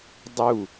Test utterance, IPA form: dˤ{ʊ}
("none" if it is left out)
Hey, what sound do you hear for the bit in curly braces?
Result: u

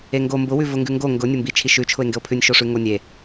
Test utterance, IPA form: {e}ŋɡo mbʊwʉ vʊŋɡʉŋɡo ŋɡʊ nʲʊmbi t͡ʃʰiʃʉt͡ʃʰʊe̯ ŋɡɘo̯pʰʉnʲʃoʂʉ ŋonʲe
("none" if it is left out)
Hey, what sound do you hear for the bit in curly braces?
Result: e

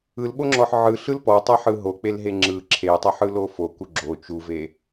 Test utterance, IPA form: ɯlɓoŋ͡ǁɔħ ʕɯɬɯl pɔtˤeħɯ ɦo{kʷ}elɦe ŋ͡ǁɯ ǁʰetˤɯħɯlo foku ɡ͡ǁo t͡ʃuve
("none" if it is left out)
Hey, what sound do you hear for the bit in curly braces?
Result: k͡p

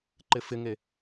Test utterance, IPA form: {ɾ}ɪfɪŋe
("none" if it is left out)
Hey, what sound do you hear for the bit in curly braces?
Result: ǃ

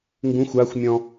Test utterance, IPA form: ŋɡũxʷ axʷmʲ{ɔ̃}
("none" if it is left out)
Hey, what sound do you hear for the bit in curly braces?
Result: ɔ̃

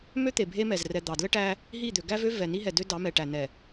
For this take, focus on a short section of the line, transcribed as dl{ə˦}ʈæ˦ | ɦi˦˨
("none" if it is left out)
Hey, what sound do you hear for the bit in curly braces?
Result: ə˦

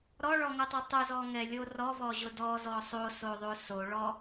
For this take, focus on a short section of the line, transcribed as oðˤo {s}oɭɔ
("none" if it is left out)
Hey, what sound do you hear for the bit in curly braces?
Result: s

